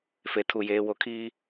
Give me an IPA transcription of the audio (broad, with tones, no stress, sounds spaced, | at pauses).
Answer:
f e˨ tʰ u˨ j eː˨ w o˨ kʰ iː˨